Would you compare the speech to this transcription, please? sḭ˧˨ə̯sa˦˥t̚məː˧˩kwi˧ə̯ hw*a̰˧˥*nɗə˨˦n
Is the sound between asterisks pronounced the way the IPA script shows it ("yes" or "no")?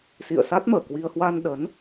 no